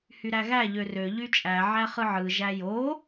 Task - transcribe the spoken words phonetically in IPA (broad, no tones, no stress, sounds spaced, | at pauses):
h y ɾ æ ɣ æ ʎ ø r ø ʎ y t͡ʃʼ æ ʕ æ χ ɯ ʕ ɯ ʒ æ j o